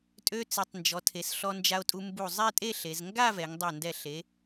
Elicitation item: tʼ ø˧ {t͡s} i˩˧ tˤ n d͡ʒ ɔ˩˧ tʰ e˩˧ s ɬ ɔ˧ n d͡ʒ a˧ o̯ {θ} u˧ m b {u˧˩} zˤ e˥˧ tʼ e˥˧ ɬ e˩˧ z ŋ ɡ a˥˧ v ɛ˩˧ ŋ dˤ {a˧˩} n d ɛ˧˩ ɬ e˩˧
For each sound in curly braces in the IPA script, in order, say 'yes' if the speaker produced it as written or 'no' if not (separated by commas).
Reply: yes, no, yes, yes